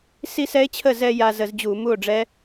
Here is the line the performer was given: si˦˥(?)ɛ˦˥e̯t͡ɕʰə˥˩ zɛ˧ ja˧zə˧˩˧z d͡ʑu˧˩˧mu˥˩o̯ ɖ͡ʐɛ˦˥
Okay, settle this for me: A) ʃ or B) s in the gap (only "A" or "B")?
B